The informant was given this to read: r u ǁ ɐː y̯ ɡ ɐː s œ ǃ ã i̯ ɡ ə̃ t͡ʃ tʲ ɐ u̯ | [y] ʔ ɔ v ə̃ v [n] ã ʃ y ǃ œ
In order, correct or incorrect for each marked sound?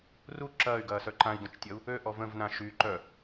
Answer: incorrect, correct

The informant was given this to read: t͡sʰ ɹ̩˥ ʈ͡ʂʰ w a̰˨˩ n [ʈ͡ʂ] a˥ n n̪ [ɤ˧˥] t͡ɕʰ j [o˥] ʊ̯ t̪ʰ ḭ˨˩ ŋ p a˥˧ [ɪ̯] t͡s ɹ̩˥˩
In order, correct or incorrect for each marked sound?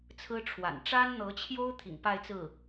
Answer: correct, correct, correct, correct

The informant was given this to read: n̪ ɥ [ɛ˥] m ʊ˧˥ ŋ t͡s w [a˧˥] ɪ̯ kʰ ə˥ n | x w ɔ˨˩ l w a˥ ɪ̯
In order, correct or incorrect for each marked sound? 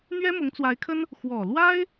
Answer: correct, correct

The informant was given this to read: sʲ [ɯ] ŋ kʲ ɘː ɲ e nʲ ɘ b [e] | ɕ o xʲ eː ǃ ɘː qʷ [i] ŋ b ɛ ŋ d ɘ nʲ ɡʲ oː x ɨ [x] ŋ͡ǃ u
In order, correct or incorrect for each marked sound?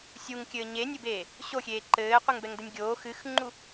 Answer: incorrect, incorrect, incorrect, correct

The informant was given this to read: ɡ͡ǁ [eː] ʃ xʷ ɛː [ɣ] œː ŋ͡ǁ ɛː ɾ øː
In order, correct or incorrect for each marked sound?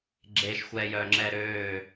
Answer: correct, incorrect

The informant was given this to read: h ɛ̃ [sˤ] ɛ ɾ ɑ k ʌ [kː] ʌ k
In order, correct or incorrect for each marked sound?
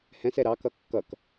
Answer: incorrect, correct

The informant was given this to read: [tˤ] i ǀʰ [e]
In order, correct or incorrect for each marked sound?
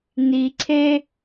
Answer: incorrect, correct

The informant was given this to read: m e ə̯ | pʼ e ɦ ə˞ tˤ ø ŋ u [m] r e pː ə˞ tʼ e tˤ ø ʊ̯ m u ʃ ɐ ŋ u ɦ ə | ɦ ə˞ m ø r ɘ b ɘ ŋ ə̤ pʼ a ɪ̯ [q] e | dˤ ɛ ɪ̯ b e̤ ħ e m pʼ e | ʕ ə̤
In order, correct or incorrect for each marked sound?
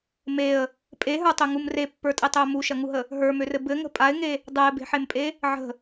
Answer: correct, incorrect

